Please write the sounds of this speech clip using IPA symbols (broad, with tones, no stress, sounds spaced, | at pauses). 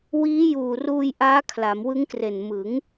w iː˦˥ j uː˨˩ r uː˧ j ʔ aː˦˥ kʰ l a˩˦ m w ɯ˦˥ ŋ k r e˨˩ n m ɯ˩˦ ŋ